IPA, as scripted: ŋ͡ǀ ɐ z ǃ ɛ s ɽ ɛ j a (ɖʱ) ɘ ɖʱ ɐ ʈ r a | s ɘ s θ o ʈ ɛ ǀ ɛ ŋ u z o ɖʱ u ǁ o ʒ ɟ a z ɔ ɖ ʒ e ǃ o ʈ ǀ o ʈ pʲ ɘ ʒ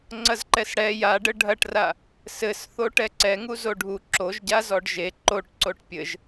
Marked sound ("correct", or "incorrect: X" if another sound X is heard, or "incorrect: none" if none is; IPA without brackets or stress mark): incorrect: ɖ